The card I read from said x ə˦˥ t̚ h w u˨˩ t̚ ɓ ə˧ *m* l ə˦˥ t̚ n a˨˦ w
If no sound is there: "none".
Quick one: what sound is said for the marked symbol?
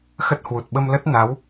m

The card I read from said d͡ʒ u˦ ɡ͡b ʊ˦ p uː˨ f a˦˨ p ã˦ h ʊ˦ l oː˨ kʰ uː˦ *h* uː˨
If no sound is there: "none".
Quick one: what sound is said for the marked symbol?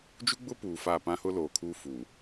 f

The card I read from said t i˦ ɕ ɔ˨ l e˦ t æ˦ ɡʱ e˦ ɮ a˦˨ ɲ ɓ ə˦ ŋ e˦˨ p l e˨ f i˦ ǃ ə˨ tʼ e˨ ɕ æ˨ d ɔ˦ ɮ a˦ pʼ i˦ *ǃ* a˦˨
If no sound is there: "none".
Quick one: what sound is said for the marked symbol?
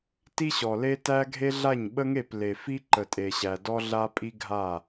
ɡʱ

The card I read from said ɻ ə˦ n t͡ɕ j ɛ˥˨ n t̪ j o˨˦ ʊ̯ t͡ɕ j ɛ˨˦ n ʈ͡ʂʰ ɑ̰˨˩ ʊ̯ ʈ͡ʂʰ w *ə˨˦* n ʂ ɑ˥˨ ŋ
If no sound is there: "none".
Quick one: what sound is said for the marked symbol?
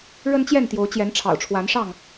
a˨˦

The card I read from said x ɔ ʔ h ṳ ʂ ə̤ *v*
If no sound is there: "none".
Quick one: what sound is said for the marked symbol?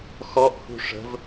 v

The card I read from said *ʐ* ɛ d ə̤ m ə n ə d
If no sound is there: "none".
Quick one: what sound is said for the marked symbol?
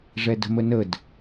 ʐ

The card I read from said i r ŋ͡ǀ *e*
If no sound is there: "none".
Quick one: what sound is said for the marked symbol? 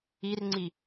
i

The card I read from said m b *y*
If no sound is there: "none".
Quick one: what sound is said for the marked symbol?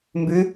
y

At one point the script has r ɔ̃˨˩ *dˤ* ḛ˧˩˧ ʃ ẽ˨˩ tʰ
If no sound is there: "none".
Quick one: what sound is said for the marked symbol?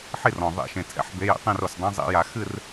ðˤ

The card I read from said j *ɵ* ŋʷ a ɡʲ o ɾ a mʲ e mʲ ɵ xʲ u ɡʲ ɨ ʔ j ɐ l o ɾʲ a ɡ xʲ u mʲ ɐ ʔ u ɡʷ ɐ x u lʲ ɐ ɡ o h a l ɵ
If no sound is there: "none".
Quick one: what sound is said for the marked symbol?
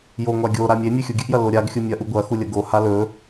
o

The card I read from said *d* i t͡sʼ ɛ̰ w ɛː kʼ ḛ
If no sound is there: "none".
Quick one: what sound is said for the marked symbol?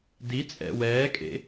d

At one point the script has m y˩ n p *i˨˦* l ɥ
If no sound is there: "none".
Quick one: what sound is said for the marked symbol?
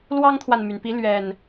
i˨˦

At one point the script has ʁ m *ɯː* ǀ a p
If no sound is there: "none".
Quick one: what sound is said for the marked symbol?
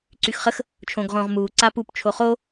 uː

